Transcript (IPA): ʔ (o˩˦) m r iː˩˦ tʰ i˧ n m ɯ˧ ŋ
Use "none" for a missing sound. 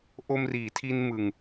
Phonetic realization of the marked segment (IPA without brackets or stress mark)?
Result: o˧